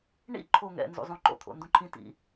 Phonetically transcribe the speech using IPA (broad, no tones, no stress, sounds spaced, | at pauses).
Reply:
ɳ ḭ ǃʰ o ŋ ɛ̰ n z ṵ zˤ ũ ǃ o̰ t̪ʰ o̰ n d ũ ǃʰ ĩ t ḭ